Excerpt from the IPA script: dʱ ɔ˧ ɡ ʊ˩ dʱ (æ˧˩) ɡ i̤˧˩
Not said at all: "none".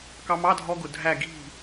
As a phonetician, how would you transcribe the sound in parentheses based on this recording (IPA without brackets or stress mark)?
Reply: æ˧˩